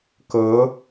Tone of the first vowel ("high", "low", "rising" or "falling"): rising